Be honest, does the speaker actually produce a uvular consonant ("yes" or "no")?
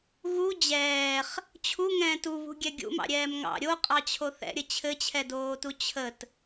yes